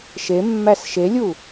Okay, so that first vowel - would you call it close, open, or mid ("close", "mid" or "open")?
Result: mid